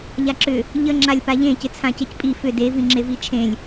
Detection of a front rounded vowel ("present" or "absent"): present